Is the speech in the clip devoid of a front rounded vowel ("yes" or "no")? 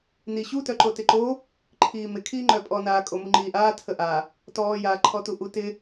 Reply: no